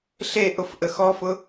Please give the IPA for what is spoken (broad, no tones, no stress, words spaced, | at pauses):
ɬeʔʊf ʔəxɔfʊ